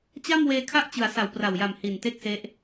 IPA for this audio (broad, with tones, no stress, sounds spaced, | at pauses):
t͡ɕ a˥˩ m w eː˧ kʰ a˦˥ ʔ t͡ɕ ɯ˩˦ a̯ s a˩˦ w p r a˨˩ w j a˨˩ m h i˨˩ n t e˥˩ k̚ s e˦˥ ʔ